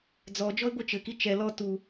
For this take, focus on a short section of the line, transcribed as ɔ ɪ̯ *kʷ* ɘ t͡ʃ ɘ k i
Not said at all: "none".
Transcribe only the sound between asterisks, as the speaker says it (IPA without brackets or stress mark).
ɡʷ